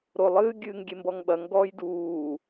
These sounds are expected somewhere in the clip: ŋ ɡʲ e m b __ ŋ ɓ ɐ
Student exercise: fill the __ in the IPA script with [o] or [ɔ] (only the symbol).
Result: ɔ